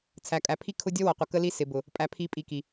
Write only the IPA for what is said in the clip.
t͡sʰ æ˨ kʼ æ˨ pʰ i˦ kʰ ʊ˦ dʲ ɔ˦ w ɔ˨ qʷ ə˨ k ə˦ l i˦ s ɪ˨ b ʊ˨ | pʼ æ˨ pʰ i˨˦ pʼ i˨ k i˨

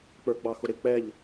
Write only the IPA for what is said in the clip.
k͡p ə˞ ɡ͡b ɑ x ʊ ɾ ɪ k͡p ɛ ʎ

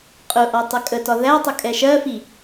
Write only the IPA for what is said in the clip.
qʼ ʊ ʔ ɒ tˤ ɪ kʼ ə t ɒ ð æ tˤ ʊ kʼ ɛ ʃ ɜ f i

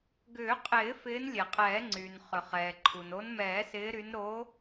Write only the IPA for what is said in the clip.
ɡ ʏː˨˩˦ qʼ ɪː˨˩˦ f ɪː˨˦ n lʲ e˩ qʼ ɛː˨˩˦ ŋ͡ǀ yː˩ n χ ʏ˩ χ ɛː˩ ǃʰ u˩ n o˨˦ n m ɛː˨˩˦ s ɪː˨˦ ɾ y˨˦ n ɾ o˨˦

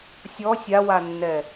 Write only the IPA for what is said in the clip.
sʲ ɔ sʲ a w a nː ɛ

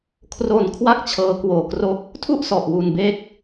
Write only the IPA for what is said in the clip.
kʰ r o˧ n kʰ w a˥˩ k̚ t͡ɕʰ ɤː˦˥ k w oː˧ k r o˥˩ k̚ | tʰ u˥˩ ʔ s ɔ˨˩ ʔ w u˧ n b e˥˩ k̚

